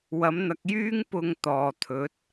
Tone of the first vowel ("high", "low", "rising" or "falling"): rising